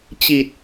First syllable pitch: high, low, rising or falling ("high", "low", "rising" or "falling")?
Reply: low